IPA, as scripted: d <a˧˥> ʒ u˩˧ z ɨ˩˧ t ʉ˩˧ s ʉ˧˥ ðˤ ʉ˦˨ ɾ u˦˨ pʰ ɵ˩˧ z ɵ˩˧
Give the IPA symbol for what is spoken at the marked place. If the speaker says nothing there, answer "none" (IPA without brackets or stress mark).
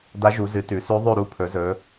a˧˥